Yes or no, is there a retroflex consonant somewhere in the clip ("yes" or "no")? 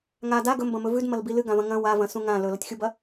no